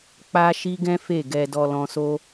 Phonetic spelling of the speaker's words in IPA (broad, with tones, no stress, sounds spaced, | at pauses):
k͡p a˦ ʃ i˦ ɡ ɛ̃˦ f e˦˨ ɡ ɛ˧ d ɔ˧ l ɔ̃˧ s o˦